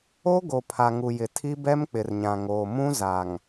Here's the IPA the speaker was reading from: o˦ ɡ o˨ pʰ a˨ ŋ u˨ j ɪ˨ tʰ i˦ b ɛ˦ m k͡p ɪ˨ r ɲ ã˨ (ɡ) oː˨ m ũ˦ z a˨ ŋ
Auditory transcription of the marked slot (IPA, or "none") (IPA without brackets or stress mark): ŋ